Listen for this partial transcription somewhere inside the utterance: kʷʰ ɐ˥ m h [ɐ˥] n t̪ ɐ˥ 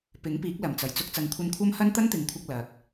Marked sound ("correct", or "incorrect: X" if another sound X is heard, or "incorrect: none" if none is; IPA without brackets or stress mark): correct